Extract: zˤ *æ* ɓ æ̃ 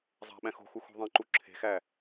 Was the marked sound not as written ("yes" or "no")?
yes